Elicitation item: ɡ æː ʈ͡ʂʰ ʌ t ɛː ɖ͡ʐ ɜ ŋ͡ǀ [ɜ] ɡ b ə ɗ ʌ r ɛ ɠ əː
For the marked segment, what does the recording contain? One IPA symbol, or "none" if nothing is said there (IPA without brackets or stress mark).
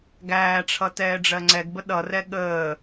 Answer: ɛ